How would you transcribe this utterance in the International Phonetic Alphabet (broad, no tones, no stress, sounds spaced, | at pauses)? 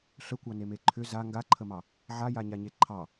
ɬ ə kʷ ɑ n e m e ǃʰ ʏ z a ŋ ɡ a ǃʰ ə m ɑ | ʕ a j a ɲ a ɲ e ǃʰ ɑ